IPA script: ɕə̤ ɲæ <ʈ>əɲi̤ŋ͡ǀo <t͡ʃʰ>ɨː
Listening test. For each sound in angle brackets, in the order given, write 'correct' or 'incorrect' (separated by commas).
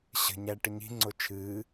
correct, correct